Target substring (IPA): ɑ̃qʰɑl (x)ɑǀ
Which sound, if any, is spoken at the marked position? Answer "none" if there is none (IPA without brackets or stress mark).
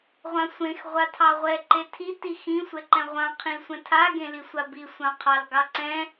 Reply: ɡ